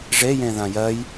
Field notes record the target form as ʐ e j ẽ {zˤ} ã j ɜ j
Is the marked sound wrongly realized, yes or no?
yes